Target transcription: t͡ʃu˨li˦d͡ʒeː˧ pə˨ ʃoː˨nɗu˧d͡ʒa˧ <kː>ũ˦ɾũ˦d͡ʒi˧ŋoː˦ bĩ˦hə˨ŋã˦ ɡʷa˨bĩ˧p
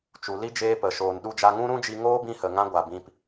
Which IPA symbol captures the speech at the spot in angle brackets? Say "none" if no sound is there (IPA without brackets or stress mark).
ŋ